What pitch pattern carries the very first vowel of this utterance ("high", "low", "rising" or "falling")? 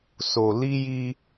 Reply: low